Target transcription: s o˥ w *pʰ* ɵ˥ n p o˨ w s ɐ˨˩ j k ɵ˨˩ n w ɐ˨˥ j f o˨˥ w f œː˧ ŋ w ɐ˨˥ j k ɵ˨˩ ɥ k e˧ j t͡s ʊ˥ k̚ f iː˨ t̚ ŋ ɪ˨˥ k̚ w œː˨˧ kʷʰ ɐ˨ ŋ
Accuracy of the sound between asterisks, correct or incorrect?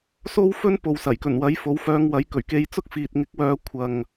incorrect